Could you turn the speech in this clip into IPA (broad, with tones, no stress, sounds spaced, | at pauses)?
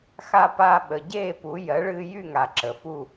x a˧ p a˧ ɓ ə˩ ɟ eː˥˨ p u˩˥ j ɜ˩˥ ɭ ɨː˧ j y˥˨ ŋ a˩ ǁ ə˩ f u˥˨